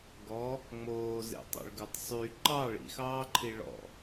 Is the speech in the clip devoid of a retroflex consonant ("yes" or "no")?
no